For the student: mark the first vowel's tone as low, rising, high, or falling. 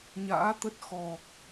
rising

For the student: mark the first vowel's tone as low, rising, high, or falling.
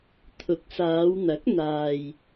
rising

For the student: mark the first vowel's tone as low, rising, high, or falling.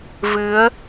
rising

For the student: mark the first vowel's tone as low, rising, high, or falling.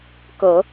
low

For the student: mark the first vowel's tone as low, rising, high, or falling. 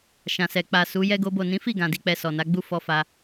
low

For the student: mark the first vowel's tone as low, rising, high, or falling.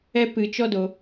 high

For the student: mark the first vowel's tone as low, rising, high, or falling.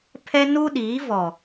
high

